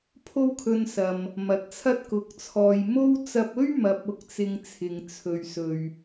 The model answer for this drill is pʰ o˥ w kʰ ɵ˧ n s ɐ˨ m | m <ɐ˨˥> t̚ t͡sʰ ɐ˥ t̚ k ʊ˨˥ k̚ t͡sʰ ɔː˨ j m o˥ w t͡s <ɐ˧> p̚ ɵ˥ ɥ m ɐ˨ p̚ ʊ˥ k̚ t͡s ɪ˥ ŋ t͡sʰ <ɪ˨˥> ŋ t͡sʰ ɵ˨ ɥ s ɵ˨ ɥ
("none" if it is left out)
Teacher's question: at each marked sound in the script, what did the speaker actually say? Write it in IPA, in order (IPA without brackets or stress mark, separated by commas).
ɐ˨˥, ɐ˧, ɪ˨